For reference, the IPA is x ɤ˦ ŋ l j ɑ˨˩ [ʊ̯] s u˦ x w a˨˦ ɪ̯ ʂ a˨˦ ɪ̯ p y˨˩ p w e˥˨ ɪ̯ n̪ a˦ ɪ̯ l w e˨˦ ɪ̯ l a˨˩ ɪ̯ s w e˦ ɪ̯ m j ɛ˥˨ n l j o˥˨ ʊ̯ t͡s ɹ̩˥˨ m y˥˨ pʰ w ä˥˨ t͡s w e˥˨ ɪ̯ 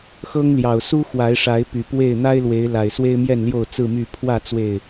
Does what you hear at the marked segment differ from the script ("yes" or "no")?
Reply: no